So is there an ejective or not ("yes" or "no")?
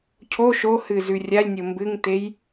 no